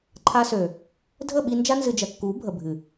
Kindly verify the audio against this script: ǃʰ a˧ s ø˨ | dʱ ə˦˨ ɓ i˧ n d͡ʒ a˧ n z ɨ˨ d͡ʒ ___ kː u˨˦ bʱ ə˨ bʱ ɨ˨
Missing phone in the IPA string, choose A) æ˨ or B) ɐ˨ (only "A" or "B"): B